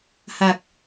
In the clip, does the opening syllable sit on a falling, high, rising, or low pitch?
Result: low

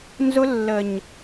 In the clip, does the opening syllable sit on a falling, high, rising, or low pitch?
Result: high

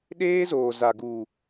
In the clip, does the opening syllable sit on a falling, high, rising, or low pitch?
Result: high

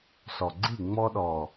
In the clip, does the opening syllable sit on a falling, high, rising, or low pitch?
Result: low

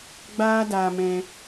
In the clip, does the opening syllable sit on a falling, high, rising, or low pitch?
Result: high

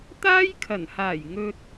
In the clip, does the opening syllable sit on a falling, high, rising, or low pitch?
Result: high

